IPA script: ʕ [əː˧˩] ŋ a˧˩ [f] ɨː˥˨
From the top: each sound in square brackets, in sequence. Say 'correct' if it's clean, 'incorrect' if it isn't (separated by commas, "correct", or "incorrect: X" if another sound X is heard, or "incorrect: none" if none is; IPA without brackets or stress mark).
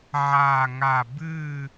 incorrect: aː˧˩, incorrect: b